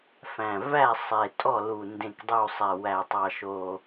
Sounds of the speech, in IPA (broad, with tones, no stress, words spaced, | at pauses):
fæ̃˨˩væ˦˨ sˤe˨˩tʼɔ˦˨lu˨˩ ndẽ˨˩kdˤu˨˩ sˤɛ˨˩wæ˨˩tˤɑ˨˩ʃoː˨˩